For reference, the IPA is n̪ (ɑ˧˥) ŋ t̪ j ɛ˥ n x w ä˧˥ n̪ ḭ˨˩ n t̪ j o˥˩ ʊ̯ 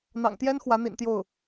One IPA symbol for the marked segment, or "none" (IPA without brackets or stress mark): ɑ̰˨˩